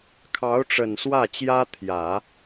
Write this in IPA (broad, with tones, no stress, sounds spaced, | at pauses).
kʰ ɑ˧˥ ʊ̯ ʈ͡ʂ ə˨˩ n s w ä˥˩ t͡ɕ j ä˥ t̪ʰ j ä˨˩˦